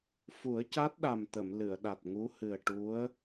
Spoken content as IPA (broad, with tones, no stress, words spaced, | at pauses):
fu˨˩˦ə̯ca˦˥t̚ɗa˨˩mt̪ə˨˩˨m lɨ˨˩˨ə̯ ɗa˨˩t̚ŋu˧˥ hɨ˨˩ə̯ʈu˧˥ə̯